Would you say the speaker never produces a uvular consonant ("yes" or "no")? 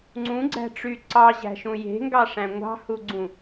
yes